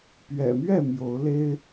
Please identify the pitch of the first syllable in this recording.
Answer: low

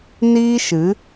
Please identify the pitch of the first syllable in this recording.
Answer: high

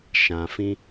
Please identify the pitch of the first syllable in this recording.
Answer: low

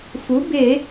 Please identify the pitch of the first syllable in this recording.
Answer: rising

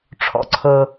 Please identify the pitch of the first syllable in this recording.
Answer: low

